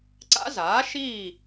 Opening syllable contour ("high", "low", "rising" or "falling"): rising